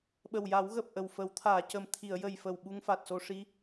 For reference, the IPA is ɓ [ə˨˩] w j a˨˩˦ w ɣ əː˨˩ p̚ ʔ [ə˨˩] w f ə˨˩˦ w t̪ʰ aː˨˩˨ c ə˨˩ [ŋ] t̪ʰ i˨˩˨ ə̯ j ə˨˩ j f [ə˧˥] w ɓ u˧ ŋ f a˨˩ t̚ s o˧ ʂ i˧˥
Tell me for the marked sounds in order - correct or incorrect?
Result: correct, correct, incorrect: m, incorrect: ə˨˩

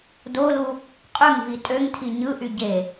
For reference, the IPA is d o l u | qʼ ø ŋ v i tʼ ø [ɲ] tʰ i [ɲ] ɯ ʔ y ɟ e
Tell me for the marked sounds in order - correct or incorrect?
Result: incorrect: ŋ, correct

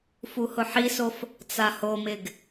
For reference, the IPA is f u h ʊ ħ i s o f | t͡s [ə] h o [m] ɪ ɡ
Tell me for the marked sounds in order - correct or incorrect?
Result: incorrect: a, correct

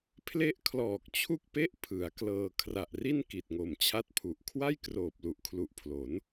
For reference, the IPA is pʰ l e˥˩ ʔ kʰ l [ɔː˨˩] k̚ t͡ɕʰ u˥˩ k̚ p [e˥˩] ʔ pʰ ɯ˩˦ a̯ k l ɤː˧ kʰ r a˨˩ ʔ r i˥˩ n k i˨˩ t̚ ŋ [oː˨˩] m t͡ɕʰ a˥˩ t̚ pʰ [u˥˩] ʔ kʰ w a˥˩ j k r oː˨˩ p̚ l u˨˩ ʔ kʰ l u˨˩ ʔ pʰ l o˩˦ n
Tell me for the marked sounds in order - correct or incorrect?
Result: correct, correct, incorrect: o˨˩, incorrect: u˨˩

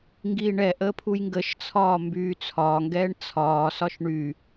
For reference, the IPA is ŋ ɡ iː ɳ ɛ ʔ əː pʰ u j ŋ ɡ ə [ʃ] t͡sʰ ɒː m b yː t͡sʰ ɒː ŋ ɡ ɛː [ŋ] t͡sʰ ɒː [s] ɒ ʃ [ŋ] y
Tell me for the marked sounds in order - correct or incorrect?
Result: correct, incorrect: ɳ, correct, incorrect: ɳ

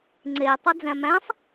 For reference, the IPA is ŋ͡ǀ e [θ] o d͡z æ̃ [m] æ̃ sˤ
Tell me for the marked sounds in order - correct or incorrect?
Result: incorrect: tˤ, correct

